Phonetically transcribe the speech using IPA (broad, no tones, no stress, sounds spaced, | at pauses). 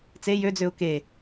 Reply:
t͡s e j ø d͡z ø ʊ̯ k e